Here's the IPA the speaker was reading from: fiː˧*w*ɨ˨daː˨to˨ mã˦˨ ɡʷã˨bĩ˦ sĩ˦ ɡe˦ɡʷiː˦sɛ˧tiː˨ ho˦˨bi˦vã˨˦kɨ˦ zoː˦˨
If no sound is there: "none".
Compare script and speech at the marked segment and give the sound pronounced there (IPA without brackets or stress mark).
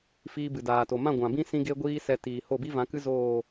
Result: b